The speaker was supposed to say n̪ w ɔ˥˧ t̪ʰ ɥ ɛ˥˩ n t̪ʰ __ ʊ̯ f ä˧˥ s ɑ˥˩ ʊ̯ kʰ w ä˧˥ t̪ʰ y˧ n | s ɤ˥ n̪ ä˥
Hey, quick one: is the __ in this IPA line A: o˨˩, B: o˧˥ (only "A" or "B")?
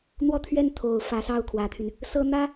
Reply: A